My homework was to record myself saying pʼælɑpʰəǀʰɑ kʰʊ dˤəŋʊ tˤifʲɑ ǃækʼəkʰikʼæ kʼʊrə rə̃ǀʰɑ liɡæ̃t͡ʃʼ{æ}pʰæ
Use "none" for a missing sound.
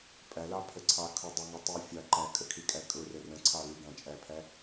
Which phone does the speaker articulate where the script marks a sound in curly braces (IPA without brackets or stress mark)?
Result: æ